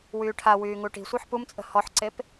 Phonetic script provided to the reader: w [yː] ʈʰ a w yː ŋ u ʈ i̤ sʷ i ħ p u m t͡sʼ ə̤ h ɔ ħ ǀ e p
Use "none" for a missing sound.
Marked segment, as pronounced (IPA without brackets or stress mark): yː